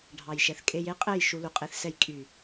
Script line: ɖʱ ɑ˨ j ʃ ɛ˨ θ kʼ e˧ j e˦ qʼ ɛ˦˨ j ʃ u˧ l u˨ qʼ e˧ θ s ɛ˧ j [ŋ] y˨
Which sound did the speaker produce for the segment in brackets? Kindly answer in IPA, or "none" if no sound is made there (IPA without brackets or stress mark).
kʼ